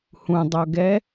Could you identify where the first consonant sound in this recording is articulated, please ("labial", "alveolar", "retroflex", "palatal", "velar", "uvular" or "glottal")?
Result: glottal